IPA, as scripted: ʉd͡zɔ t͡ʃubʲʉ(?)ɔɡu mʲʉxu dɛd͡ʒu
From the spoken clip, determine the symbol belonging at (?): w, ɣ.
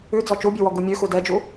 w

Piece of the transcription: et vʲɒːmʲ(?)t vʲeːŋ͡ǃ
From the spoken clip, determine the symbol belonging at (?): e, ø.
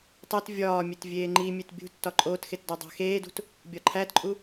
e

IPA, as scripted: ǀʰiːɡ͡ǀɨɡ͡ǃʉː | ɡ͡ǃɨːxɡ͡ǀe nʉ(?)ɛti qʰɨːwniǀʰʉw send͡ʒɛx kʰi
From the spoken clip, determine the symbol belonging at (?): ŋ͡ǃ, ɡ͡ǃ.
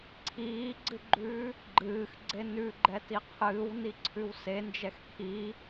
ɡ͡ǃ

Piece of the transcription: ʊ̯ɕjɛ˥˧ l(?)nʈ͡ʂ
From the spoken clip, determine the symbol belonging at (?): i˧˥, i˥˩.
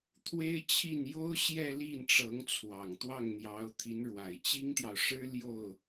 i˥˩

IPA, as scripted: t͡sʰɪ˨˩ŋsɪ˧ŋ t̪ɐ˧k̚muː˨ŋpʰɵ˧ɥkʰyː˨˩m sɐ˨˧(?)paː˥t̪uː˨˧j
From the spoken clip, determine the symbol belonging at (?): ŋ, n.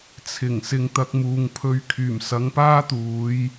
ŋ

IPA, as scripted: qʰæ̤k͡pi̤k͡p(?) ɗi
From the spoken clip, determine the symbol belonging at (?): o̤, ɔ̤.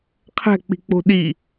o̤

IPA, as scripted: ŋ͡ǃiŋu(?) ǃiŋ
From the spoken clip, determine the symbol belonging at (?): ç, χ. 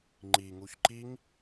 ç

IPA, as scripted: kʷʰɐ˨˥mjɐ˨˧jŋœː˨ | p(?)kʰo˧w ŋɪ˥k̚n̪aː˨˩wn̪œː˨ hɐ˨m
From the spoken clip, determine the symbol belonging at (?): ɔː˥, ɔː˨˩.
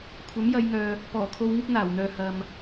ɔː˨˩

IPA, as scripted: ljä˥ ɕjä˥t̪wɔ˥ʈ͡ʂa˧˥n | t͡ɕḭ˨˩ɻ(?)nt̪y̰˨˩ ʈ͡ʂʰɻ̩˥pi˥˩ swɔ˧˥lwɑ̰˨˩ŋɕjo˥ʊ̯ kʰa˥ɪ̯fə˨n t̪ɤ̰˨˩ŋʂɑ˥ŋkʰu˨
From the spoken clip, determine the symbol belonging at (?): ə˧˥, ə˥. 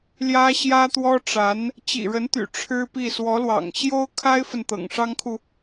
ə˧˥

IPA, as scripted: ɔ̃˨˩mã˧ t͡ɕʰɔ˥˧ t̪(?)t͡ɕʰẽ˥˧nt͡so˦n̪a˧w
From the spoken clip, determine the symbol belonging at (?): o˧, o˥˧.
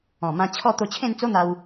o˧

